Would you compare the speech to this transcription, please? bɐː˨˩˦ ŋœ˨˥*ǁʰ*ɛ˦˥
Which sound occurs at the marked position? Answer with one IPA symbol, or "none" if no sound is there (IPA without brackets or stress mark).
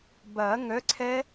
ǀʰ